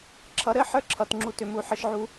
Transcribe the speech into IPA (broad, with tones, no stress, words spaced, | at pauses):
ǁʰʌ˨˩˦ɾɘ˦˥ħə˞˦˥ ǁʰʌ˩˧˩tŋ͡ǁu˦˨ tʏ˦˨mu˦˨ ħɘ˦˥ʃʕu˦˥